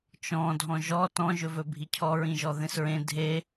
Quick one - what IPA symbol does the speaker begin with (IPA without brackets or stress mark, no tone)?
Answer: t͡ʃ